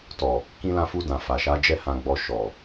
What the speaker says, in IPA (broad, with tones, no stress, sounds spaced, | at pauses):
t ɔ˨ | k ĩ˧ l ã˧ f u˧ d ã˨ f a˨ ʃ a˨˦ d͡ʒ ɛ˦ h ã˧ ɡ͡b ɔ˧ ʃ ɔ˨